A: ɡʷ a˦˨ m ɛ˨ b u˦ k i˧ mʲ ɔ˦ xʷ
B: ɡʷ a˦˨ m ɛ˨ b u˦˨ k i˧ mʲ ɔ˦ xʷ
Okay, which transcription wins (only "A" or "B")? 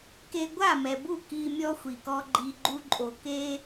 B